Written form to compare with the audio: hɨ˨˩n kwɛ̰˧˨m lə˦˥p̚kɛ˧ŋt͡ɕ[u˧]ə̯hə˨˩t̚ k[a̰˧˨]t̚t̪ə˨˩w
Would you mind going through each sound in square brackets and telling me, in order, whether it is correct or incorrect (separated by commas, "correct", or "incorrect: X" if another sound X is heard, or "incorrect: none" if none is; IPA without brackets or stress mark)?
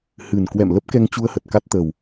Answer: correct, incorrect: a˦˥